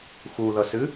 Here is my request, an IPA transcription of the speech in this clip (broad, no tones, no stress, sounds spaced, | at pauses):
x u ð ʌ s ɨ